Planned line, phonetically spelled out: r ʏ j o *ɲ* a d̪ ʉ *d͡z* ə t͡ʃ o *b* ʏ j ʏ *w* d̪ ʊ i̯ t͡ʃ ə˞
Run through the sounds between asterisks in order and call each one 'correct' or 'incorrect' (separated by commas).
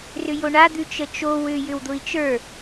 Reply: incorrect, incorrect, incorrect, correct